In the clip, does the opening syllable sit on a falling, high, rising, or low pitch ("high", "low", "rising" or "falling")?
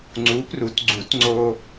rising